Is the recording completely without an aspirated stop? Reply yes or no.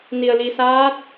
yes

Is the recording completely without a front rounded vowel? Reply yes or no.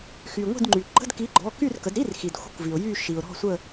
no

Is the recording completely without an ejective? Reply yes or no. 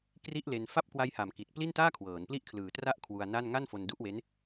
yes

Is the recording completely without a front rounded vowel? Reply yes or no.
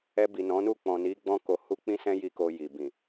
yes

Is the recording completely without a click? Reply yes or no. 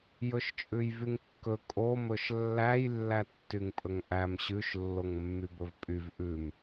yes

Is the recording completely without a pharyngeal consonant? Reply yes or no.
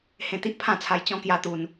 yes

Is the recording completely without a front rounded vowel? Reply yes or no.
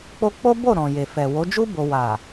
yes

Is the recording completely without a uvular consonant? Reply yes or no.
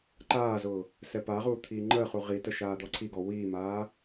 no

